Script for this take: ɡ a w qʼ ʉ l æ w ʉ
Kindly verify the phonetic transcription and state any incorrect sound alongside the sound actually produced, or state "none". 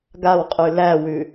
none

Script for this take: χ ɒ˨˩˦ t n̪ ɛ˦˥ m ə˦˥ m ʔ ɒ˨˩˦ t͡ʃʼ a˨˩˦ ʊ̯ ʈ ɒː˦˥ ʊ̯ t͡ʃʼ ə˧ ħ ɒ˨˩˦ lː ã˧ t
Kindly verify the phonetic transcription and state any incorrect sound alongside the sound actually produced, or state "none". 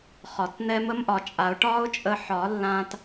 none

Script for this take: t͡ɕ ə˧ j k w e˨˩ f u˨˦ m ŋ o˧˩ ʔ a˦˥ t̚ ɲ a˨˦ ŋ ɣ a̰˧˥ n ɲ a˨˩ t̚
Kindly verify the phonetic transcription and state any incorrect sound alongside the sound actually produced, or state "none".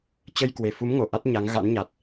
none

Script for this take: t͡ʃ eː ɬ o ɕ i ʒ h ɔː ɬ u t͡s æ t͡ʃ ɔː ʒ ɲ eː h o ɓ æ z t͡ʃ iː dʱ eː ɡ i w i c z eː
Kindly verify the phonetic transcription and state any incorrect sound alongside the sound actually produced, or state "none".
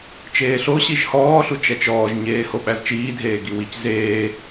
t͡s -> t͡ʃ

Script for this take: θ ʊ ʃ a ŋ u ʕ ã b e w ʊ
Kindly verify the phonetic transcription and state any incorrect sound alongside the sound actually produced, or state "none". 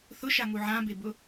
w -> b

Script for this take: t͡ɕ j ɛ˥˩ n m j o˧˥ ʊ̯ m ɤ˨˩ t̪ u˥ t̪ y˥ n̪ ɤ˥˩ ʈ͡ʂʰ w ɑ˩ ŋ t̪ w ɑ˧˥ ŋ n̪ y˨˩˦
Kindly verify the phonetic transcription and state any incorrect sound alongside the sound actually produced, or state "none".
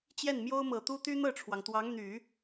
o˧˥ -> o˥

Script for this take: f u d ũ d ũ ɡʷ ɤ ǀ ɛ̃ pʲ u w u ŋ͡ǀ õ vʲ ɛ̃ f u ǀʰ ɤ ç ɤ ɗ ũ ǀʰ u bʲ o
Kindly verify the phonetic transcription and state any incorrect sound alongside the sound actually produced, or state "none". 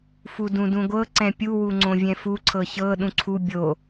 none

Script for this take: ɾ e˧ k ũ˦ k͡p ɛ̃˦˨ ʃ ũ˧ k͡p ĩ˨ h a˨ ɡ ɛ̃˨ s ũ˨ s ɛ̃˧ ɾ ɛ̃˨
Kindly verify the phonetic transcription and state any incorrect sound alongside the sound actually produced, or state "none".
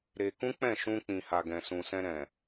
none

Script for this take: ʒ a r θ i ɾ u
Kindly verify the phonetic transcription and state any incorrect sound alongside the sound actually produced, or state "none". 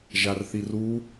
ɾ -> r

